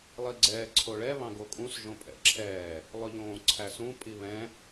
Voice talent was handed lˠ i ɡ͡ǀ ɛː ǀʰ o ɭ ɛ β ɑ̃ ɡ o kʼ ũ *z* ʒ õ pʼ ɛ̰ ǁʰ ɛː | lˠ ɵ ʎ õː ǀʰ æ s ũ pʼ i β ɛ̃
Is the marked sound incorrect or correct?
incorrect